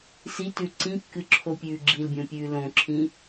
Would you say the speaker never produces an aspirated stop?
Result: no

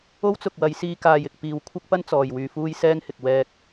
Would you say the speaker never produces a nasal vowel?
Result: yes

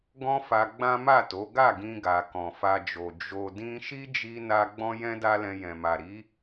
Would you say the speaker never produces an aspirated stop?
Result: yes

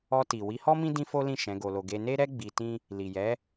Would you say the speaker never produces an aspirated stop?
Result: yes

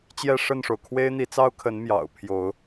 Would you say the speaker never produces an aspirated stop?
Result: no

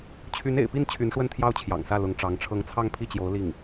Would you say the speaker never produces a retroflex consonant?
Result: no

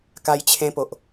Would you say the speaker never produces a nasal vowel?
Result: no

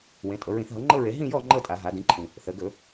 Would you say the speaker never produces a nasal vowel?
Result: no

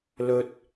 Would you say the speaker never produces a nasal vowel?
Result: yes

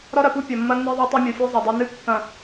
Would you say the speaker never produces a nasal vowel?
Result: no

